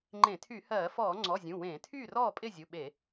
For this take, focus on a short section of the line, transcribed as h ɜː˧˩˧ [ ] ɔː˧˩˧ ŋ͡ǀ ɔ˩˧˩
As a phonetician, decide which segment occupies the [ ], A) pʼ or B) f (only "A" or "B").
B